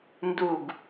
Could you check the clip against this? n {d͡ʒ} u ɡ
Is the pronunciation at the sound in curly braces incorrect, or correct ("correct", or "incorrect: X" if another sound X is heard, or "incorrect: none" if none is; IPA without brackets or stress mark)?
incorrect: d